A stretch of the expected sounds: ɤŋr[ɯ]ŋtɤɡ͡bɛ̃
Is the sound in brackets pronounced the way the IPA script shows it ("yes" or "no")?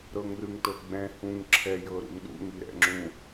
yes